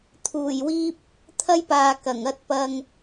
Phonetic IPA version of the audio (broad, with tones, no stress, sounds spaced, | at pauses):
t̪ʰ uː˨˩ j w iː˧ p̚ | t̪ʰ ɐ˥ j p aː˨ k ɐ˨˩ ŋ ɐ˧ t̚ p ɐ˨ ŋ